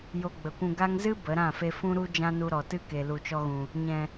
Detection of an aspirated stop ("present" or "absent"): absent